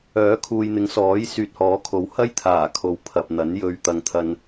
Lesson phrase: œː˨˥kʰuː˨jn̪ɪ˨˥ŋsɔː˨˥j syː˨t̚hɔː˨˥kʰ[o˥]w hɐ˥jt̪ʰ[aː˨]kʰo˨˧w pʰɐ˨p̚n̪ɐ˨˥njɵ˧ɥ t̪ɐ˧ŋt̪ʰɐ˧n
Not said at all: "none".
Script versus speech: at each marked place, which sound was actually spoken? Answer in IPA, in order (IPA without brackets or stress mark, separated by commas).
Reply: o˨˥, aː˨˩